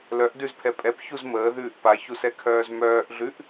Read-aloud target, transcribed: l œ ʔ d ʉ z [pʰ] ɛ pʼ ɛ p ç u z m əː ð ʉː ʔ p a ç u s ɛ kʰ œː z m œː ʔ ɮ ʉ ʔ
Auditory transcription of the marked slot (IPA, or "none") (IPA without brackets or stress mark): pʰ